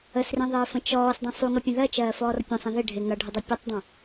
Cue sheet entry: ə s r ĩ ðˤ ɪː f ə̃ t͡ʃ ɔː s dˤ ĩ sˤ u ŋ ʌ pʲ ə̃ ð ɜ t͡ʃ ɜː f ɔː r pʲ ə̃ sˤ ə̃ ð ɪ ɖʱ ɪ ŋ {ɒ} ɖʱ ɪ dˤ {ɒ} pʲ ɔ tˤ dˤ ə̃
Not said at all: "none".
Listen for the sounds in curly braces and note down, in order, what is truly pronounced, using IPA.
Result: ʌ, ʌ

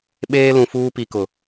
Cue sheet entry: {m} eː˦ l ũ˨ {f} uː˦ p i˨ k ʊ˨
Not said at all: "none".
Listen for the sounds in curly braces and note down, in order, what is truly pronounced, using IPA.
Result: ɓ, f

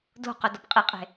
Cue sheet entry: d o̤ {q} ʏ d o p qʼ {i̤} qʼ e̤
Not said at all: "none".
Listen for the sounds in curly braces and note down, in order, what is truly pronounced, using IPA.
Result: q, i

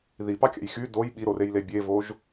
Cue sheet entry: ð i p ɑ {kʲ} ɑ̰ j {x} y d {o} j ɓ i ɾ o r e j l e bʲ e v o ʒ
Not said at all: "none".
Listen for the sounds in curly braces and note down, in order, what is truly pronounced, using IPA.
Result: kʲ, x, o

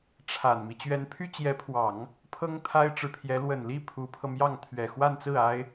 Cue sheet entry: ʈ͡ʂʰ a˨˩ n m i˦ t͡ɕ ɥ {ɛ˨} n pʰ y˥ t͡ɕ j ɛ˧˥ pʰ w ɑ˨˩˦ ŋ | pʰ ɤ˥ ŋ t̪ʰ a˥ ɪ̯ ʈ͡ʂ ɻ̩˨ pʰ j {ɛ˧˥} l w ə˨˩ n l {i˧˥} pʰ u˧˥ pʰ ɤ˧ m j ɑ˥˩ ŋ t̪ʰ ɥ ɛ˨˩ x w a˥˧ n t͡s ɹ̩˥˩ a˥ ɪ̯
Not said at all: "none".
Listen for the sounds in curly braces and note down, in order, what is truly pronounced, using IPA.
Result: ɛ˧˥, ɛ˧˥, i˥˩

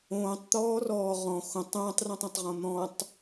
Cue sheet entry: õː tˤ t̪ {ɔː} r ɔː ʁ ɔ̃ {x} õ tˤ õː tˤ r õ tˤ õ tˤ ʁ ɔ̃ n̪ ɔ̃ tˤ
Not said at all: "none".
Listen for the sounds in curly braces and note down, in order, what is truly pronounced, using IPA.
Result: ɔː, x

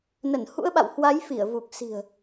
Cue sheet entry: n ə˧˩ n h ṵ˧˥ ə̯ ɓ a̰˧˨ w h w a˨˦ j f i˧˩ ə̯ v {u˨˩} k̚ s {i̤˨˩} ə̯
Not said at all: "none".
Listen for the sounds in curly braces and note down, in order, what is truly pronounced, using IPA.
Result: u˨˩, i̤˨˩

